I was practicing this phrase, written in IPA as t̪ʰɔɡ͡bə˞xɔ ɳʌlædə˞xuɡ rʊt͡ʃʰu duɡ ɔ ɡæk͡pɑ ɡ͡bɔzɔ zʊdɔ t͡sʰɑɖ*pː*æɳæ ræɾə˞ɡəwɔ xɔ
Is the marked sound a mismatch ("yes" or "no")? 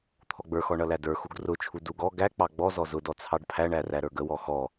yes